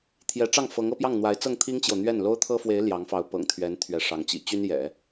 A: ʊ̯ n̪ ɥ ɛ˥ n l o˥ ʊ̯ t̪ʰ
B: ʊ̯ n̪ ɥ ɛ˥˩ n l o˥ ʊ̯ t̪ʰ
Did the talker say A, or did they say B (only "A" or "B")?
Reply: B